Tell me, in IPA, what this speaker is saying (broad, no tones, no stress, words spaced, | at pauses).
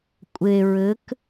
kʷʼe ɹɘk